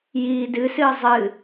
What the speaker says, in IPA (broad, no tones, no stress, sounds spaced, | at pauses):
j iː d ɨ s ɨː zˤ ɨ